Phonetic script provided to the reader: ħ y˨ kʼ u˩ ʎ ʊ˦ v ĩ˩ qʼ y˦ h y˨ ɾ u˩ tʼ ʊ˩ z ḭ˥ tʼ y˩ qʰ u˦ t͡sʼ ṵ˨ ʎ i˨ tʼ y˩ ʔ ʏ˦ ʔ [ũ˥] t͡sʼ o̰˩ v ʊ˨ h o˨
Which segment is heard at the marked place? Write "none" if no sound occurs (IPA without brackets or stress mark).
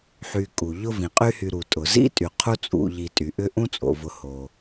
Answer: ũ˥